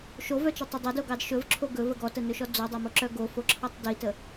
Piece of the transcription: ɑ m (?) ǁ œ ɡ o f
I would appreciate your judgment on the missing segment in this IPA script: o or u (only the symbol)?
o